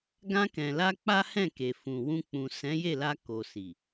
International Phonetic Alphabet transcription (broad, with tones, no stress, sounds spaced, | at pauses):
ɡ ã˧ k ɛ̃˨ l a˧ k͡p a˦ h ɛ̃˦˨ k e˨ f ũ˨ w ũ˧ k͡p ũ˨ s ɛ̃˨˦ j e˦˨ l a˧ k o˨ s i˨